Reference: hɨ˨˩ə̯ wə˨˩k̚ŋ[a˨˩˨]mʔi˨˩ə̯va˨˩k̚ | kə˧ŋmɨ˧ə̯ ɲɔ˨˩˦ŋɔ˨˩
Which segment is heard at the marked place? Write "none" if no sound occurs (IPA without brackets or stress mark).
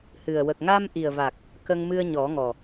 a˧